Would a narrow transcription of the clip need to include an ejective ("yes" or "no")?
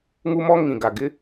no